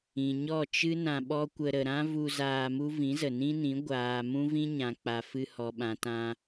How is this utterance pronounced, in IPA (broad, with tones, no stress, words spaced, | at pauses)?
ĩ˨ ɲɔ˦˨t͡ʃɨ˦ nã˧ɓɔ˦kʷə˧ ɾə˨ɾã˦vu˧ zaː˧mu˦ vĩ˨˦zə˨nĩ˦nĩ˨˦ ɡʷaː˨ mũ˦vĩ˦ɲã˨k͡pa˨ fɨ˧hɔ˨ɓã˨tã˧